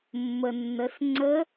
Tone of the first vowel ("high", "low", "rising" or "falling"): low